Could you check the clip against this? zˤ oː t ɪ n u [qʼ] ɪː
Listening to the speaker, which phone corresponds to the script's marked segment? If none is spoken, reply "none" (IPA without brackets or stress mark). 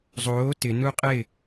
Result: qʼ